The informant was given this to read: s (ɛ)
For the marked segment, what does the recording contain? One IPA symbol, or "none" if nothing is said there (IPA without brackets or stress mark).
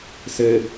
ɘ